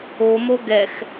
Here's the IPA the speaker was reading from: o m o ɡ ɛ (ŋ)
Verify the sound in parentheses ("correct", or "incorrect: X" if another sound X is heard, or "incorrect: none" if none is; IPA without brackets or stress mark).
incorrect: x